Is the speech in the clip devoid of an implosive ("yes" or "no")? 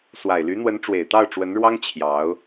yes